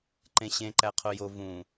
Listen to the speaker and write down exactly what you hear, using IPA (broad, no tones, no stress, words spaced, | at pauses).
ǃẽɕẽ ǃæqʰojo vũ